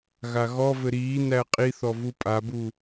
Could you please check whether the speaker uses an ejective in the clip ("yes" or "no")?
yes